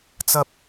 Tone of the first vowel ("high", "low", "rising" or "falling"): high